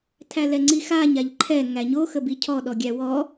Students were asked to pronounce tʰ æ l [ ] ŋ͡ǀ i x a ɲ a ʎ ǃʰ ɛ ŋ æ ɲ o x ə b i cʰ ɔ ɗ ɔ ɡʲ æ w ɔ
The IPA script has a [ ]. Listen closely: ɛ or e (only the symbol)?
ɛ